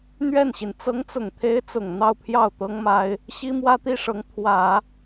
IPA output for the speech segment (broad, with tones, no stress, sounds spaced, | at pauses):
n̪ ɥ ɛ˥˩ n ɕ i˩ n t͡s ɤ˧˥ ŋ t͡s ʊ˨˩ ŋ t̪ʰ e˧˥ ɪ̯ t͡s ʊ˨˩ ŋ n̪ ɑ˥˧ ʊ̯ pʰ j ɑ˥˩ ʊ̯ t̪ ɤ˥ ŋ m a˥ ɪ̯ | ɕ i˥ m w ä˥ t̪ i˥˩ ʂ ɤ˧˥ ŋ t̪ʰ w ä˨˩˦